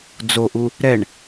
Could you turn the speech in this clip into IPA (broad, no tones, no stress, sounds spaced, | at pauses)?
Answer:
d͡z o ʔ u | ɾ ɛ ɳ